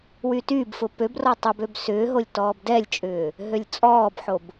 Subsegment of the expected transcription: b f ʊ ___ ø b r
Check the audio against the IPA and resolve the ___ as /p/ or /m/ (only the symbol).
p